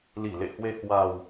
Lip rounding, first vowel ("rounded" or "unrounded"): unrounded